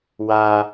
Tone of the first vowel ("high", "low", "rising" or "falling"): high